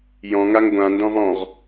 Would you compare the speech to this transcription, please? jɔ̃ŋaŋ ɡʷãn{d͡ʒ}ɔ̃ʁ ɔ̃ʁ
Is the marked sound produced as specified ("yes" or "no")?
no